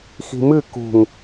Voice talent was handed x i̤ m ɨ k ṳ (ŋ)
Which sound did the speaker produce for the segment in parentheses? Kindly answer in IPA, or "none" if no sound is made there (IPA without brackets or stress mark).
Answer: ŋ